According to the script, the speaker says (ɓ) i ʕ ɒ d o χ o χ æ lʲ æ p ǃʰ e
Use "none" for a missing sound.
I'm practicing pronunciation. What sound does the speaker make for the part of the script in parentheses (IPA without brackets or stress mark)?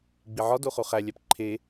ɡ͡b